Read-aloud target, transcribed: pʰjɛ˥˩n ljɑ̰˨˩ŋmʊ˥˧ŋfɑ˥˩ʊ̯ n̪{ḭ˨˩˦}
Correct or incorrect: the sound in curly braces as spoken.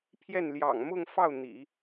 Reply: correct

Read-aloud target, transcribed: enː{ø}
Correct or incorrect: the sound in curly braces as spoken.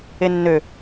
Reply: correct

